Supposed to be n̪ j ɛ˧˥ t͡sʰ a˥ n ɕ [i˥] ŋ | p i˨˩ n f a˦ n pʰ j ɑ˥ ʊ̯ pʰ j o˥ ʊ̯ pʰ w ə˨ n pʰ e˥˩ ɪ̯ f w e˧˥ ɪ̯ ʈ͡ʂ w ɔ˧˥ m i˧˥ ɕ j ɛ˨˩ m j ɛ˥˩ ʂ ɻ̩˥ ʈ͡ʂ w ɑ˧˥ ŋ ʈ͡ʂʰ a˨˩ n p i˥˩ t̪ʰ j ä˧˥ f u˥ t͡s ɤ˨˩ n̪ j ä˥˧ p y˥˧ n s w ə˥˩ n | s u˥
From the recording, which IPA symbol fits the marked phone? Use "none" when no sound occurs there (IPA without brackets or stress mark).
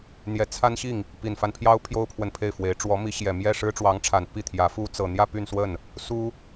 i˥˩